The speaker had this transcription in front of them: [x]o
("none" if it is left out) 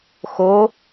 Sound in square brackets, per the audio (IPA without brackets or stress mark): x